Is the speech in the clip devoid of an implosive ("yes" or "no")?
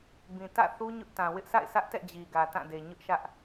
yes